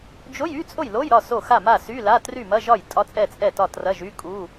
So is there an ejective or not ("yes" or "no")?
yes